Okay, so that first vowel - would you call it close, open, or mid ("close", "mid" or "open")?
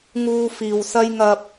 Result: close